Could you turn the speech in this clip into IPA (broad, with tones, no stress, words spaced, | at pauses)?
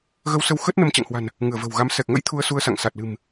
ɣə˧wsə˧wxə˦˥t̚ nə˧mt͡ɕa̰˧˨ŋhwa̤˨˩n | ŋɨ˧˩ə̯və̤˨˩wɣa˨˦m sɛ˨˩k̚ŋə̰˧˥j t̪ʰu˧ə̯su˧ə̯sa̰˧˨ŋ sa˨˩t̚lɨ̤˨˩m